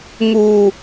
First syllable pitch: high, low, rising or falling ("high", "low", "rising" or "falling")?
low